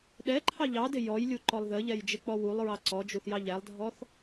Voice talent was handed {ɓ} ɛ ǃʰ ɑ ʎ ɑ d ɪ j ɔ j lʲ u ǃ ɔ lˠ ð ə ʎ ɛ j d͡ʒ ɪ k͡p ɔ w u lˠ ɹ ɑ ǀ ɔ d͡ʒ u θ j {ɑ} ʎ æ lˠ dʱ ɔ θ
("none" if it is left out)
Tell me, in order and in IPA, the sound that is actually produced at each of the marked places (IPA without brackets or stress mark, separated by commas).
ɗ, ɑ